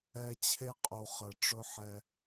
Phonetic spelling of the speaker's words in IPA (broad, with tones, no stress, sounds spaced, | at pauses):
ɛ˦ t͡ɕʰ e˦ qʼ u˨ χ ə˨ ʈ͡ʂ ɵ˦ ħ ɛ˧